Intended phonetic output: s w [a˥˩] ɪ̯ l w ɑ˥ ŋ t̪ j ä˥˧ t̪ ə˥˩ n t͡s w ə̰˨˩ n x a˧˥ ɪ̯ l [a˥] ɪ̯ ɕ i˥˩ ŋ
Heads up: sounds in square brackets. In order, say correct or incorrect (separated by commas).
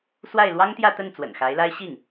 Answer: correct, correct